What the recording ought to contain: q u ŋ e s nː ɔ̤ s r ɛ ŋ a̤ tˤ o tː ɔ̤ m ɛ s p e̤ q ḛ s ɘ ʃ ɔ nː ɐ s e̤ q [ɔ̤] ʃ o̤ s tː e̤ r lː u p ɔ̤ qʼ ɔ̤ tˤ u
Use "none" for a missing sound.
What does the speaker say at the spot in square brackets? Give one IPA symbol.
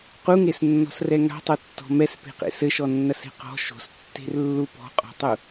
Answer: ɔ̤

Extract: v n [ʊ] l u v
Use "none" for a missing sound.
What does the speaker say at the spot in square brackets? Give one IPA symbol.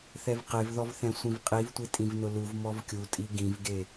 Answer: ʊ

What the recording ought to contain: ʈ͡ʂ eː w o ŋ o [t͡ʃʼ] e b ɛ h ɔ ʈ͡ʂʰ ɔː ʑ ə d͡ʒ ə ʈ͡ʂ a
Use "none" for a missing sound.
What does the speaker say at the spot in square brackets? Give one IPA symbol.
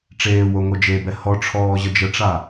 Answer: d͡ʒ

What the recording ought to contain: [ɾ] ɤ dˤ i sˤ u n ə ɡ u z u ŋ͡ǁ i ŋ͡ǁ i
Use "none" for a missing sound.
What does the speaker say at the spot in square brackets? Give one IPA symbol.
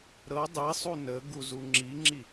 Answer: ɾ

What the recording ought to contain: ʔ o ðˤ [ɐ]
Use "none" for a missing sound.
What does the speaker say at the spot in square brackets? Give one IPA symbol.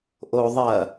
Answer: ɐ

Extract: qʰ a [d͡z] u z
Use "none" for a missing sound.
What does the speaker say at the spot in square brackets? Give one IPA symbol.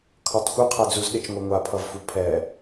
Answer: d͡z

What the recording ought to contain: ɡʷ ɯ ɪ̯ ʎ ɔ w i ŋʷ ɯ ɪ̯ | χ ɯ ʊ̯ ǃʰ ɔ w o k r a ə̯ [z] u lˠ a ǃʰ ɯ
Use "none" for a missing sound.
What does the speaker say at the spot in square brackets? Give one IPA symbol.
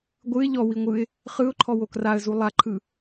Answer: z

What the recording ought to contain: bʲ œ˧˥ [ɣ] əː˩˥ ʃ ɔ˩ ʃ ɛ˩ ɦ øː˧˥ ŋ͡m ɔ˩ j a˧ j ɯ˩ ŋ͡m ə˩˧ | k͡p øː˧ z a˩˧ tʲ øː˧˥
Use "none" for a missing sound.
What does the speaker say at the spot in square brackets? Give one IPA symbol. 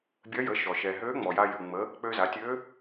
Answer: j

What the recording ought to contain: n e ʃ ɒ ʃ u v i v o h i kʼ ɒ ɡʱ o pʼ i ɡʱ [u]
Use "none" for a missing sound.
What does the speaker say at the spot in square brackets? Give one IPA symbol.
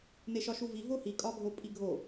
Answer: o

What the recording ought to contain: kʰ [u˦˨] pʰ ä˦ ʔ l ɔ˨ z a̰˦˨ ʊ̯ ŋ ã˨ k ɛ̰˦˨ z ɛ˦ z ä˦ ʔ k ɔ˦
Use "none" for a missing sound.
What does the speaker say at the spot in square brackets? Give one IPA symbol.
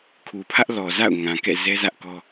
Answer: u˨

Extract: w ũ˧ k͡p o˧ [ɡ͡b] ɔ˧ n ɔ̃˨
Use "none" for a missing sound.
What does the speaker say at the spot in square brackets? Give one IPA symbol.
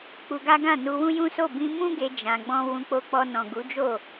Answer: k͡p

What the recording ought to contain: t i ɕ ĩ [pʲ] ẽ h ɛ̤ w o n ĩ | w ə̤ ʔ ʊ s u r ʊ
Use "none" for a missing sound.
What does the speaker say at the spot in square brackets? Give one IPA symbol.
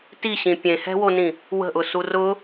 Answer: pʲ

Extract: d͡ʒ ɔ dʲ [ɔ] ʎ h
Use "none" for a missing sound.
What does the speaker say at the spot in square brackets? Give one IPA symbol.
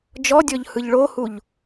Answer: ɔ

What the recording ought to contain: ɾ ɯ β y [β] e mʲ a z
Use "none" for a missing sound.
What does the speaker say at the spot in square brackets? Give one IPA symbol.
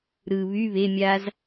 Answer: β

